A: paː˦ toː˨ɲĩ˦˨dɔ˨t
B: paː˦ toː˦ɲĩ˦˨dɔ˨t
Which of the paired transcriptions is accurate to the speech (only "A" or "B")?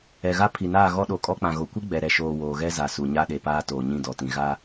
A